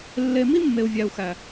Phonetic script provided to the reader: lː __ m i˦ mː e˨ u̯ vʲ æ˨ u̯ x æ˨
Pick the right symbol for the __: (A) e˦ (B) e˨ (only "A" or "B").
B